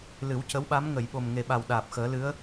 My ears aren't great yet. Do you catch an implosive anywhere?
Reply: yes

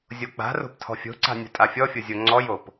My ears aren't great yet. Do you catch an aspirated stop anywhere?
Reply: yes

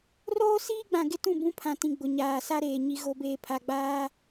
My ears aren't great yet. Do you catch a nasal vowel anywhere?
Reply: yes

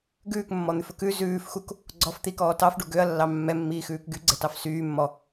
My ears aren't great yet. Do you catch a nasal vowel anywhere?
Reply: no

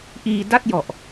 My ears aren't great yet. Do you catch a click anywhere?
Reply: no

